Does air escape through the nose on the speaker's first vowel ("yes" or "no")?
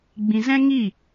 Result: yes